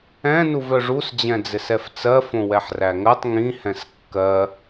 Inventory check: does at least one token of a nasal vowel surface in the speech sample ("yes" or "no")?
yes